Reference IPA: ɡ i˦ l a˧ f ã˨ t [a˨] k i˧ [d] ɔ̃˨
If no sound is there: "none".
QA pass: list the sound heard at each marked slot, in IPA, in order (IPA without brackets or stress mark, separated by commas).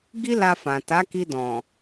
a˨˦, d